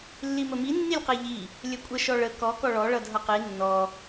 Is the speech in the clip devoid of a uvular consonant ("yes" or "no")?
no